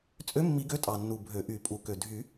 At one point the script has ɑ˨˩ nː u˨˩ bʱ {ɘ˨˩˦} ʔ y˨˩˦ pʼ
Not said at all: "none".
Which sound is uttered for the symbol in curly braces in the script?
ø˨˩˦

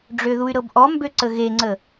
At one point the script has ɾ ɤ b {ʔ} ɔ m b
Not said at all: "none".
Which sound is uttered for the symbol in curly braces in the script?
ʔ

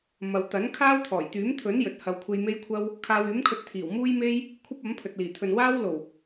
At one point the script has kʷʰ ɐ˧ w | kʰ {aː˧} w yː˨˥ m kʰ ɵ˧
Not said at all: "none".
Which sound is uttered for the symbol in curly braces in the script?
aː˧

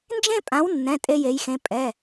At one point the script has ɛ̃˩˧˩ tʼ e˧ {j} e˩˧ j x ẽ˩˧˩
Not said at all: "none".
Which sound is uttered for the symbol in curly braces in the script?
j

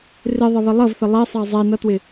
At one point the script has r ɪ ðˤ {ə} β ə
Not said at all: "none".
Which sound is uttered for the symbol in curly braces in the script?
ə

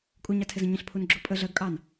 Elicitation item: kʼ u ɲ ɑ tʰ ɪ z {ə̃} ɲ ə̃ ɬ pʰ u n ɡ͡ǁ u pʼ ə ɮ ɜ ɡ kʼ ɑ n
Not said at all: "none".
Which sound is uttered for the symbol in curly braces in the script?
ə̃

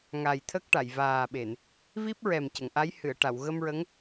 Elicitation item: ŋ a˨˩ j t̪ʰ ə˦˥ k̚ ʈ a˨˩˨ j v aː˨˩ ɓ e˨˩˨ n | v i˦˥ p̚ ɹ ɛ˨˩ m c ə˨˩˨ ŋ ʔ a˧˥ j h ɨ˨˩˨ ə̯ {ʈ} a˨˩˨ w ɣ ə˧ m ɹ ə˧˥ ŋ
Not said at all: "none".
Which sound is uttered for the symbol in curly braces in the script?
ʈ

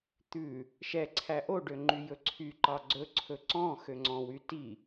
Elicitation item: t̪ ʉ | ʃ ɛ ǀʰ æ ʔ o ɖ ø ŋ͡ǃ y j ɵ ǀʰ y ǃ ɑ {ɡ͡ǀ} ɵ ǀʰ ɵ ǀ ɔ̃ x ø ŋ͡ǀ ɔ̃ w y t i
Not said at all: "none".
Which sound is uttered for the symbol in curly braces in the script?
ɡ͡ǀ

